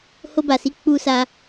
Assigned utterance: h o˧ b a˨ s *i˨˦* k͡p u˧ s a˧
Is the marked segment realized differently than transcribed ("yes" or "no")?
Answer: no